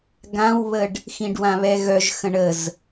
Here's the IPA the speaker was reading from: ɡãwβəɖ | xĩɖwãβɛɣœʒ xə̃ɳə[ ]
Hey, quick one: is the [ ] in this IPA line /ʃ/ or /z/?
z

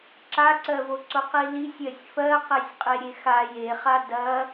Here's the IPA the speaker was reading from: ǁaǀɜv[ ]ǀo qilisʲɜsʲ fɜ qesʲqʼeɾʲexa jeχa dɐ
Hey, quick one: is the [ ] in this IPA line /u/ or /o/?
o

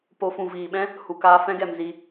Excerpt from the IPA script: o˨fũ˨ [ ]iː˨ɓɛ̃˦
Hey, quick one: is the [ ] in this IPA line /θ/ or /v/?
v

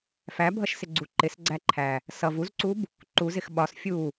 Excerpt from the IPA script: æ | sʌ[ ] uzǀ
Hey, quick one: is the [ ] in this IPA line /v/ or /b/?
v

